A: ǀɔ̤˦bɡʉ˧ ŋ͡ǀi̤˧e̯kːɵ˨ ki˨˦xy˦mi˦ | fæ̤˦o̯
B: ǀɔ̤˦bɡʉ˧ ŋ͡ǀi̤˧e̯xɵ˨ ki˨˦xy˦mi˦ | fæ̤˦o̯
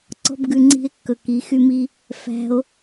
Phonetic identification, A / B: A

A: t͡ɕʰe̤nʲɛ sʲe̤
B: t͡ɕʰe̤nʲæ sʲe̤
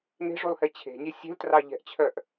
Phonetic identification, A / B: A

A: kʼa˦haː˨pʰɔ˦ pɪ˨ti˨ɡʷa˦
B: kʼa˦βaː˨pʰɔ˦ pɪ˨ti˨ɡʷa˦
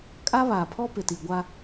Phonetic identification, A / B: B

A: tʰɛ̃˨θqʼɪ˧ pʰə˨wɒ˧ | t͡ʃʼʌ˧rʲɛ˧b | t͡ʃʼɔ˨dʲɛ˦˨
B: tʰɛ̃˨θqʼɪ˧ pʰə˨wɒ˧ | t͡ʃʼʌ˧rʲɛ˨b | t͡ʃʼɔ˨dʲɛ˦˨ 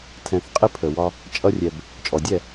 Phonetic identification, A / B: B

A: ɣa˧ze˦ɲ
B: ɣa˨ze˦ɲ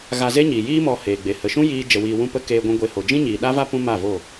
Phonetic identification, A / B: A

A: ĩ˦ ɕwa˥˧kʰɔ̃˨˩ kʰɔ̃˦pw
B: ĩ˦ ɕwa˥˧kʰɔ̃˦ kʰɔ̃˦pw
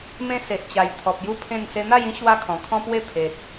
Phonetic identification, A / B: A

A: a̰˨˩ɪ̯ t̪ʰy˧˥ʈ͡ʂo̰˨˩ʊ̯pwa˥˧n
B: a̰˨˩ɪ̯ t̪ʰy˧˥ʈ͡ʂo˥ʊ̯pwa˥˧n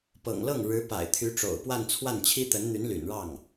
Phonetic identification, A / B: A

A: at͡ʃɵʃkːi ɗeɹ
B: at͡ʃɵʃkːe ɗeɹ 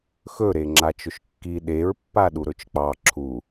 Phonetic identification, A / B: A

